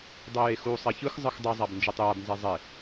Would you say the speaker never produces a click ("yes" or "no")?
yes